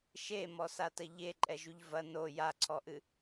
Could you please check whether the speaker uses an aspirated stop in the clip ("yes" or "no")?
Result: yes